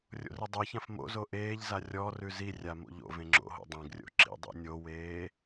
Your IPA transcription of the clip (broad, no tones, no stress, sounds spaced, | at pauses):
rʲ o̰ r i dˤ e ç ã f m o̰ z o ʔ eː ʎ z a rʲ ɔ r ʉ z i rʲ a m o̰ ʎ o̰ v ẽ ŋ͡ǁ o̰ ɦ o̰ dˤ ẽ ɡ rʲ o̰ ǁ ḭ dˤ ḭ nʲ o w eː